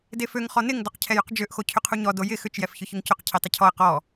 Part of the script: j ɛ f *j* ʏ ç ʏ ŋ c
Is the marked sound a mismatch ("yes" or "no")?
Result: yes